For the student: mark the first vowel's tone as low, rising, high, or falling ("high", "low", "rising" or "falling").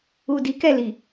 low